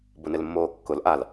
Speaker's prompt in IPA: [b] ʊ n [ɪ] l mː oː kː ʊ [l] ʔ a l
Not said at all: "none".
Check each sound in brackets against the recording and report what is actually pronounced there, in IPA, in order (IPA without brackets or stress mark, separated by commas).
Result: b, ɪ, l